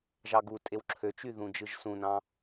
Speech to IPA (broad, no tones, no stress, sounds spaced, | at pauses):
ʒ ɑ ɡ u tʼ e w ǁʰ ø t͡ʃ y ð ũ d͡ʒ ɯ ʒ s ũ n ɑ̃